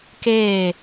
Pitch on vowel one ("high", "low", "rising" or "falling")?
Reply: falling